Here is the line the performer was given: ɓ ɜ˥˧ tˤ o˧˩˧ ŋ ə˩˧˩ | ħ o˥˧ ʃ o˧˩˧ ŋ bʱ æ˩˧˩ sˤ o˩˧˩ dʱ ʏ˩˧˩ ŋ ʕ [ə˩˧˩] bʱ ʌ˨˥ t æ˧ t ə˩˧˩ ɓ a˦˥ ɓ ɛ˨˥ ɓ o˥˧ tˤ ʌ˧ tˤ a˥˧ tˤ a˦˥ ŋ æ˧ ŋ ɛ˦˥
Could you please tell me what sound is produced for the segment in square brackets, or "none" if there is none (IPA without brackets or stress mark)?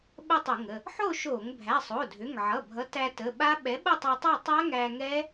ʌ˩˧˩